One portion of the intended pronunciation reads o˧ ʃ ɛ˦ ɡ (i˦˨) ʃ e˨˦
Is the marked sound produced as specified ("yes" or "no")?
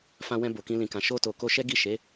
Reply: yes